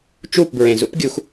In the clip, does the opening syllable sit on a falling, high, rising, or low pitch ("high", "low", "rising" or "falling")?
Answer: falling